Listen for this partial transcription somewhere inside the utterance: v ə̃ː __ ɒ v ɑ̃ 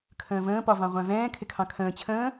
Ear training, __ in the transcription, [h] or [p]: p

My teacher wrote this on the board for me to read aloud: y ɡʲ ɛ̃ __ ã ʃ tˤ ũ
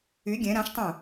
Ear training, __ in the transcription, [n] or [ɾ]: ɾ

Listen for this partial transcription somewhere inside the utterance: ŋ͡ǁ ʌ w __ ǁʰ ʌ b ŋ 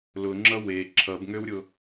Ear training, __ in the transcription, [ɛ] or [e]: e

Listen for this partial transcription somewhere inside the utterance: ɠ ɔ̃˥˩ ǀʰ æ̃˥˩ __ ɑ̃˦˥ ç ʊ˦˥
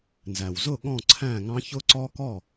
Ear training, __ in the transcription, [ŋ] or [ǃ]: ŋ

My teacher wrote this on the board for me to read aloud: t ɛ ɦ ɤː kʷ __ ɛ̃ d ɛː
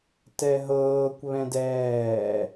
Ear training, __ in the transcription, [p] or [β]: β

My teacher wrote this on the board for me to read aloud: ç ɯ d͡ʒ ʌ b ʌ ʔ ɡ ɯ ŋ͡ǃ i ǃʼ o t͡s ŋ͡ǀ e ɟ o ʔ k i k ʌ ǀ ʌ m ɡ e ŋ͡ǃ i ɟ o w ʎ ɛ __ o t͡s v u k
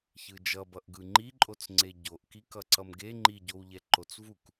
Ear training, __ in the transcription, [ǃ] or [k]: ǃ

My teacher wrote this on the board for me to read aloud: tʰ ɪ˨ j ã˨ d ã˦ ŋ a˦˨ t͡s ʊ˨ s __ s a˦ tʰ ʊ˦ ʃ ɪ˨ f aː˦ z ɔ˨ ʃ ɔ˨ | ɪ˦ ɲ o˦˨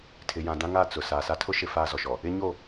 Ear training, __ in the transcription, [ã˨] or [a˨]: a˨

